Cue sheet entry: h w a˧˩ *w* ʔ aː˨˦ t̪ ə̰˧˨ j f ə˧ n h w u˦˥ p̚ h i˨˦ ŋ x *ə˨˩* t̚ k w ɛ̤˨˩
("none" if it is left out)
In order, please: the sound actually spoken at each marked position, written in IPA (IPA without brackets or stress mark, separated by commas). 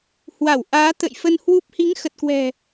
w, ə˨˩